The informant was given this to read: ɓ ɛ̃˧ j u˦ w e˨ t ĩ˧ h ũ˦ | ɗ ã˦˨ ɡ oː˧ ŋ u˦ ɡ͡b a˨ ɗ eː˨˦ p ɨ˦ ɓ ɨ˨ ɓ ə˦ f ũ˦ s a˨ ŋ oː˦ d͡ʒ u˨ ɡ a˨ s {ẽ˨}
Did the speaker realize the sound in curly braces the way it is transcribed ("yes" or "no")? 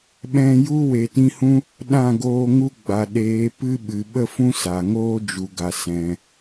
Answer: no